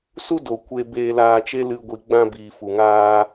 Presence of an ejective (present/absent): absent